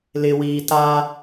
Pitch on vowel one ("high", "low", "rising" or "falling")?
low